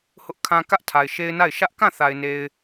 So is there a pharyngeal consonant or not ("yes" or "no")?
no